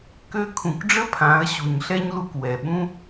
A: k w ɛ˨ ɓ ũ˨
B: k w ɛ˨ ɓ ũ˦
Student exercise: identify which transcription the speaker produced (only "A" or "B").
B